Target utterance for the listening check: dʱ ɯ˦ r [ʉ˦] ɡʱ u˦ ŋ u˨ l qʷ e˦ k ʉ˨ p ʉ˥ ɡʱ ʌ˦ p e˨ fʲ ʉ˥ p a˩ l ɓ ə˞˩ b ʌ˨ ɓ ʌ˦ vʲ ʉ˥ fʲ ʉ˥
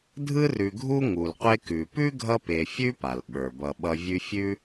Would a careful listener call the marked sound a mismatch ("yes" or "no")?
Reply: yes